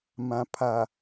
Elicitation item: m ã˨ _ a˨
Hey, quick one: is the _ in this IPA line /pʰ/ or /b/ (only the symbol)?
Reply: pʰ